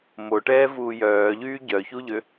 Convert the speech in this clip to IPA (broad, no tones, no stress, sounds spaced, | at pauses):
m o ʈ ɛː v uː j œː ʎ yː ɟ œ ç u ʎ ø